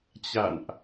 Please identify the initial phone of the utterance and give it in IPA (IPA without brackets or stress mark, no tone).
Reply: t͡ɕ